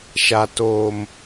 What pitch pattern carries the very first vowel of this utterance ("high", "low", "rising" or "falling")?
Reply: low